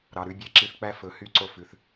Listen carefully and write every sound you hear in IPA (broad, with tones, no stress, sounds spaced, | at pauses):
ɾ ɑ˨ ɾ ʉ˧ bʲ ɛ˧ ǁ i˧ θ k͡p æ˦ f ɵ˨ h y˦˨ ǀ o˧ f ʉ˨ θ